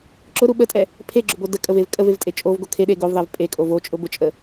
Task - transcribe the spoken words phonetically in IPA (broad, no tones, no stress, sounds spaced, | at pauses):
ǁ ʊ ɾ u ɓ ə tʼ ɛ | pʰ e ɡ͡ǁ ʊ b o d ə kʼ ə v e v kʼ ə v e v tʼ e t͡ʃʼ o v ɡ o kʰ e ɗ e ɡ o v ðˤ ɛ v pʼ e kʼ o v o t͡ʃʼ ʊ b ʊ t͡ʃʼ ə